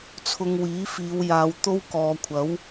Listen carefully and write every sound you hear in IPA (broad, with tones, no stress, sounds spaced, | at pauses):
t͡sʰ ʊ˧ ŋ w iː˨˥ f iː˨˧ w j aː˨˧ w t̪ o˥ w k ɔː˨ kʷʰ ɐ˨˥ w